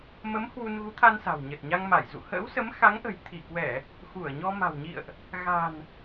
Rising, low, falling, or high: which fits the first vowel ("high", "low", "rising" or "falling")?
rising